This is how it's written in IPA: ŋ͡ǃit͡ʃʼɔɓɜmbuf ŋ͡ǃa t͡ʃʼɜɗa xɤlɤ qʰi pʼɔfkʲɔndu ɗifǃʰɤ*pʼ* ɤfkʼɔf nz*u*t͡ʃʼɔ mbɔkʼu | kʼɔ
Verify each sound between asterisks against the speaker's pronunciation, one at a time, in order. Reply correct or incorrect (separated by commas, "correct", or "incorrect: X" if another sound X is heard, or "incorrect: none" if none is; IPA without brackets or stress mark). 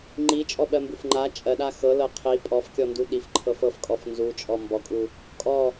incorrect: f, correct